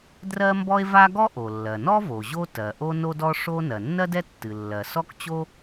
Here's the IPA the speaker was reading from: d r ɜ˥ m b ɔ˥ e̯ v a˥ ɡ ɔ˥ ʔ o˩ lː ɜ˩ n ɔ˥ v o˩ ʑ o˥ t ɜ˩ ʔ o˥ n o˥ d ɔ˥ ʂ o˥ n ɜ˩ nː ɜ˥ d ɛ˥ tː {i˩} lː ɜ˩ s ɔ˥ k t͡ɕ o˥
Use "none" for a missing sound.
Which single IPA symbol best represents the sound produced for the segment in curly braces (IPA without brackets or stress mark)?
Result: ɨ˩